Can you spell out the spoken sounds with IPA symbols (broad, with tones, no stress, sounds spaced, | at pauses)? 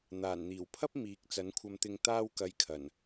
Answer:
n̪ aː˨˩ n n̪ iː˨˩ w pʰ ɐ˥ p̚ m iː˨˥ k̚ t͡s ɐ˨˥ n kʷʰ ɐ˧ m t̪ ɪ˧ ŋ t̪ aː˥ w k ɐ˧ j kʰ ɐ˨˩ n